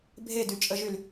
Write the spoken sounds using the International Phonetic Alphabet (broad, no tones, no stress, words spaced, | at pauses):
bʱedyt͡ʃʼəʒyl